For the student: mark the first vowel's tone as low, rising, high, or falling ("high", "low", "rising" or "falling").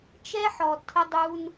high